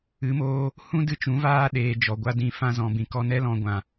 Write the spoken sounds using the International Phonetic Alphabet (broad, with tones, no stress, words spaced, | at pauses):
ɨ˨˦moː˧ | hũ˦dɨ˧ t͡ʃũ˨˦vaː˦ ɗeː˨ d͡ʒɔ˨ɡʷa˦dĩ˧ fã˧zɔ̃˨bĩ˨ kɔ˧nɛ˦lɔ̃˧ ɡʷã˨